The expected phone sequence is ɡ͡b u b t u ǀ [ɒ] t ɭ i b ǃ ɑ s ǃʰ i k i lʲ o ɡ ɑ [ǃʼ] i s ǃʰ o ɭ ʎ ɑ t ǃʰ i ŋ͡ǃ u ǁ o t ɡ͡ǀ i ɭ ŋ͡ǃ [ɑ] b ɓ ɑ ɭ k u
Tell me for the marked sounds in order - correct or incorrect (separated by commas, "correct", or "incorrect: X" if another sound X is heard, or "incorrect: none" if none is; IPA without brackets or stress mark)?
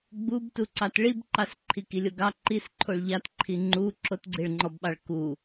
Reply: incorrect: ɑ, incorrect: ǃ, incorrect: ɔ